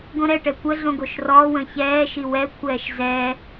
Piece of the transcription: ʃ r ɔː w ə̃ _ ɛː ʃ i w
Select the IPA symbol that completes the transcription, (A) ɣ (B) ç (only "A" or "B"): B